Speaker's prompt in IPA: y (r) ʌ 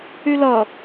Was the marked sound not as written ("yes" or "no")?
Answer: yes